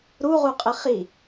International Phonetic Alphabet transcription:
ɾuʁuqʼɪ χi

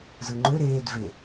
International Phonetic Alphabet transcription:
zɯŋ͡ǃø ɾeːd ve

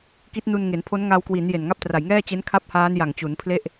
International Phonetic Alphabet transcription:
ki˦˥t̚nu˧nŋe˩˦npʰo˦˥n ŋa˧wkwi˩˦n je˨˩nŋa˥˩p̚tra˨˩j ŋɛː˥˩t͡ɕe˦˥n kʰa˥˩p̚haː˦˥nja˨˩ŋt͡ɕu˩˦n pʰle˥˩ʔ

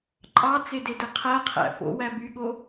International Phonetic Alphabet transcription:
ǃʼɑt͡sededɯ qʰæqʰæ̰ fo̰wæ byɠo

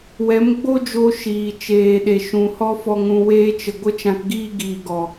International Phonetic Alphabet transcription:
wɛ˨˦mɡ͡bo˦d͡ʒo˧ ʃiː˨ t͡ʃeː˨ɗe˨ ʃũ˨hɔ˦fɔ˧ŋ ũ˧weː˦t͡ʃə˧ ɡʷə˦t͡ʃã˧kɡiː˦ɡiː˨ ɡɔ˨

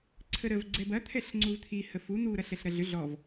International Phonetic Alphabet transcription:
ǀʰəɾəv ɡ͡ǀɛbɐ t̪ʰɛɬŋ͡ǀuvt̪ʰi həfu n̪u ɾɐɬɛɬɾɐɮʏ ɮɔv

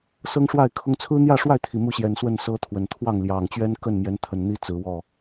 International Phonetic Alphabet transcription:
sɤ˦ŋʂwa˥˨ɪ̯kʰʊ˦ŋ t͡sʰɹ̩˦n̪jä˥˨ʂwa˥˨ɪ̯ t̪ʰi˨˩mu˥˨ɕjɛ˨˩n swə˥˨nsɤ˦t̪ʰwə˨˩n t̪ʰwɑ˥˨ŋljɑ˨˩ŋ t͡ɕɥɛ˦nkə˥˨nmjɛ˨˦n t̪ʰə˨˩nn̪i˦ t͡sɹ̩˨˦wɔ˥˨

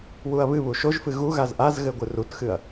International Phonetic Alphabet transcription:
wuɐ̯βɨβu ʃoʒfɨ ɣu ɣazʔazɣɘ ɡʷɨrutxɨɐ̯

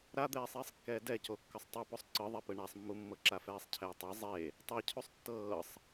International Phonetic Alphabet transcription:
ɾad̪ɛːsˤiːsˤkːɛː dɛco kːɤsˤtˤɤposˤ ǀɯðˤɛpɯ ɳasˤmːumːɤ ǁafɛːsˤcʰɛːtˤa zˤe | tˤacʰusˤ tːɤːsˤ

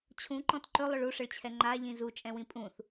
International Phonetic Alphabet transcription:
t͡ɕʰũǃɔ̃t ǃɵlˠɵɭ uʂəɭt͡ɕʰɛ ŋ͡ǃaʎĩ zut͡ʃʼɛ̃wĩ pʼũθ

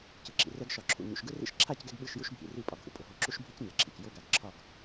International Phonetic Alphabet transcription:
cɯ˨ǁḭ˨rɛ˧ɡ ʃɒ˨ǁʰṵ˨ ɲṵ˨ʃɡɯ˦rḭ˦ʃ ǁʰa˦˨cɡɛ˧ɡ ɓɯ˦˨ʃju˦ʃ bʱḭ˨ri˧ pʼɒ˨ɡʱṵ˧ pʼʊ˨ɦo˧ ǁu˦ʃbʱi˦c ɲɛ˨ǁʰḭ˨c jo˧ɡa˨ɡ ǁʰɒ˦˨ɡ

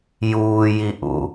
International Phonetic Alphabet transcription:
juːjiʔṵ

